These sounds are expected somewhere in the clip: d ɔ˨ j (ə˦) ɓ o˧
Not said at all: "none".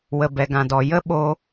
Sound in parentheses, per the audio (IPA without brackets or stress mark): ə˦